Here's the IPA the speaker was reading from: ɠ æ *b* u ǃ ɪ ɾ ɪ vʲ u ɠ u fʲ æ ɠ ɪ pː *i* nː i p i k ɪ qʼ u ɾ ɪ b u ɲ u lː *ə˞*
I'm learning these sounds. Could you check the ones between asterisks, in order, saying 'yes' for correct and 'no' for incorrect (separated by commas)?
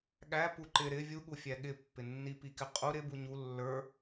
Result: no, no, yes